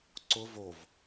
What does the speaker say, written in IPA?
ǀ ʊ v o v

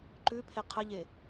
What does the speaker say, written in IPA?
ǃ ʉ pʰ e qʰ ə ʎ e

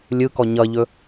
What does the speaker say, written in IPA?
lʲ ɯ k ɔ ɲ ʌ ʎ ɵ

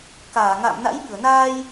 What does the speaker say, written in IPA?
k aː˧˩ ŋ a̰˧˨ m n a̰˧˥ j ɓ ɨ˧˩ ə̯ n aː˧ j

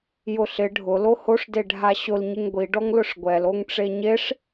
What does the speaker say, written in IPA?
j ʊ ɬ ɪ ɖʱ ʊ l o h o ʂ d e ɖʱ a ɕ ʊ l ɲ ɪ ŋ ɡʷ i ɖ ɔ ŋ l ʊ ʂ ɡʷ ɛ l o ŋ ʈ͡ʂ e ɲ e ʂ

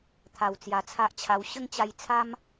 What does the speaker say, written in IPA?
t̪ʰ a˨˩ w t͡s j a˨˩ t͡sʰ a˦ ʔ t͡ɕʰ a˧ w ɕ ə˦ ŋ t͡ɕ a˧ j t͡sʰ a˦ m

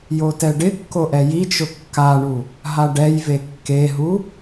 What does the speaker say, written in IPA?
j o t ɛ ɖ ɪ kː o ʔ ɛ j i t͡ʃ ʊ kː a ɳ u | ɦ a ɖ ɛ j v e kː e ɦ u

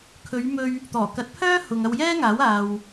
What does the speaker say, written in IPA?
kʰ ɵ˨˧ ɥ m ɵ˧ ɥ | t̪ ɔː˨˩ k ɐ˨˥ t̚ pʰ œː˥ h ʊ˨ ŋ ɐ˧ w j ɛː˥ ŋ aː˨˥ w aː˨ w

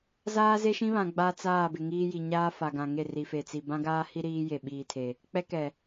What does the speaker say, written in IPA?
z aː˦ z e˦ ʃ ĩ˦ β ã˨ ɡ͡b a˦ t͡s aː˦˨ b ɪ˨ ŋ iː˦ j i˨ ɲ aː˦ f a˨ ɡ ã˨ ŋ e˦˨ r i˨ f e˨ t͡s i˨ b ã˦ ɡ aː˦ h i˦ ɾ iː˦ j e˨ ɓ iː˨ tʰ e˨ | k͡p ɛ˦ k ɛ˨

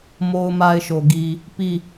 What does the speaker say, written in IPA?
m o˦ ʊ̯ m a˦ ɪ̯ ʃ o˨ ɡ i˨ | p i˦˨

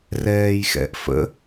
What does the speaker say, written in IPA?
r ɛː j x ɛ̰ ʔ f ə̰

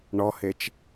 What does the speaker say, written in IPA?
ɳ ɔ h e t͡ʃ

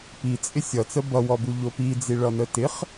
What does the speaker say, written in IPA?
p i t͡sʼ ɪ sʲ ʌ t͡s ə b ʌ w ɔ b u ʎ o p i d͡z i ɭ ʌ n ə t ɪ χ

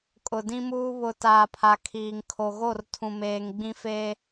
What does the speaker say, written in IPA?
kʼ ʊ˨ d ĩ˦ m uː˦ β ʊ˨ t aː˨ pʰ a˨ kʰ iː˨ ŋ kʰ o˨ ɣ o˦˨ r tʰ ũ˨ m eː˨ ŋ ɡ͡b ĩ˦ f eː˦

